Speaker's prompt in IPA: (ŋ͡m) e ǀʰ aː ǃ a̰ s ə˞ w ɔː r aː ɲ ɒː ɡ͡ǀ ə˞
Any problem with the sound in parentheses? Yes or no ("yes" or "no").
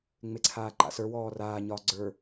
no